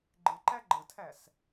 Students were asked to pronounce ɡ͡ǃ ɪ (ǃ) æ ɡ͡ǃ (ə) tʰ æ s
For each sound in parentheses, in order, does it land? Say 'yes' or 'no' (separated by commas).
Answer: yes, yes